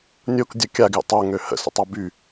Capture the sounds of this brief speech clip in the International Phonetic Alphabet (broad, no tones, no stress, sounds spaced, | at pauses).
nʲ o k dʲ ə kʲ a ɡ j ə̰ tˤ o ŋ ø h ə̰ s ə̰ tˤ a b y